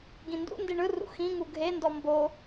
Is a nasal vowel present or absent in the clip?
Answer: present